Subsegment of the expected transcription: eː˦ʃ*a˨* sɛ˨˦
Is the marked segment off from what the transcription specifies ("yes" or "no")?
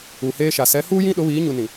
no